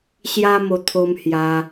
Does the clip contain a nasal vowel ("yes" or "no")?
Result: no